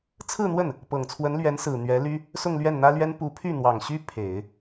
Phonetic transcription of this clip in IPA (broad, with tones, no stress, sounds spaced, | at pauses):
t͡sʰ ɹ̩˥˧ n̪ w ə˥˩ n | p ɤ˨˩ ŋ t͡sʰ w ə˧˥ n l ɥ ɛ˧˥ n s ɹ̩˨˩ n̪ ɥ ɛ˧˥ l y˥ | s ʊ˥˧ ŋ l ɥ ɛ˥˩ n n̪ ä˥ l ɥ ɛ˥ n p u˧˥ pʰ y˥˩ n̪ w ɑ˨˩ ŋ ɕ y˥ pʰ e˨˩˦ ɪ̯